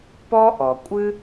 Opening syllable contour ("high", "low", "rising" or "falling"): high